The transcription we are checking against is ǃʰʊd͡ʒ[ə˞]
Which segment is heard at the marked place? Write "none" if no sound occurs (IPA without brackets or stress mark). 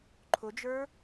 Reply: ə˞